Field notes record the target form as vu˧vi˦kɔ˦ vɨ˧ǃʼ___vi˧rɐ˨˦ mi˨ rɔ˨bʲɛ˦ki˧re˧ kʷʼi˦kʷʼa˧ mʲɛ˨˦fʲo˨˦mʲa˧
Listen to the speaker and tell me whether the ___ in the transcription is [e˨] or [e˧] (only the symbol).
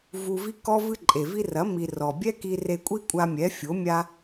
e˨